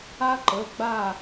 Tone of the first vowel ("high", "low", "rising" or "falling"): high